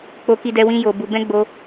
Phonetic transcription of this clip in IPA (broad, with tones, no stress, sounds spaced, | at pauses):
k͡p o˧ k i˧ d ɛ˧ w ĩ˦ j o˧ b u˧ b ɛ̃˦ ɡ͡b o˧